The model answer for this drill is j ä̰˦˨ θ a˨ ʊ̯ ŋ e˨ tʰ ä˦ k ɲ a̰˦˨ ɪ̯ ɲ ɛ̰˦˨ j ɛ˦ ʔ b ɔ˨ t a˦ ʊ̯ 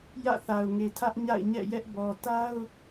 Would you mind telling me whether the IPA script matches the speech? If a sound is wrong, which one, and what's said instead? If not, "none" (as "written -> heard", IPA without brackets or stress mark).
k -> ʔ